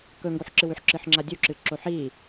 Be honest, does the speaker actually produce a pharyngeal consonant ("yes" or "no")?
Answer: yes